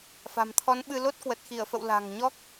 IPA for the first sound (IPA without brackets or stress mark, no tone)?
f